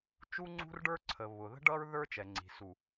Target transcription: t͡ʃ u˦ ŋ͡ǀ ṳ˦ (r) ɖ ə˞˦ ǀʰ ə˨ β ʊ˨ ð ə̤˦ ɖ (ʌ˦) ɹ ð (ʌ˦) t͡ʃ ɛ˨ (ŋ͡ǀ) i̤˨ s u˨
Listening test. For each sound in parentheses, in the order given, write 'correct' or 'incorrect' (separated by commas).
correct, correct, incorrect, correct